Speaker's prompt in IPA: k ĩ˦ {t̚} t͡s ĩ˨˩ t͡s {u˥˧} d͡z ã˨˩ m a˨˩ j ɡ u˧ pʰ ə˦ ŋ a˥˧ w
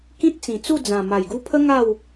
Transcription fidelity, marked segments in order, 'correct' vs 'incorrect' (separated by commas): correct, correct